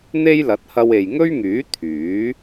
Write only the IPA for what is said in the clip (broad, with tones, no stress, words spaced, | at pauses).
n̪e˥jlɐ˨˥t̚ hɐ˧we˨jŋɵ˥ɥŋyː˨˥ t̪ʰyː˨˥